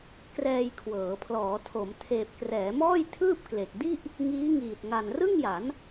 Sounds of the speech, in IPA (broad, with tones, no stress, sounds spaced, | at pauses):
k r ɛː˧ j kʰ w ɤː˩˦ pʰ l ɔː˩˦ tʰ o˩˦ m tʰ eː˨˩ p̚ k r ɛː˩˦ m ɔː˥˩ j tʰ ɯː˥˩ p̚ k l e˨˩ k̚ d i˥˩ ʔ | ŋ iː˦˥ ŋ iː˨˩ t̚ ŋ a˨˩ n r ɯ˥˩ ŋ j a˩˦ n